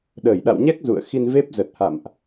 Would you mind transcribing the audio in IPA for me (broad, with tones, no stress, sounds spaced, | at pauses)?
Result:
ɗ əː˧˩ j ɗ a̰˧˨ w ɲ ɛ˦˥ k̚ z ṵ˧˨ ə̯ x i˧ n v e˦˥ p̚ z ə˨˩ t̚ h a̰˧˨ m ʔ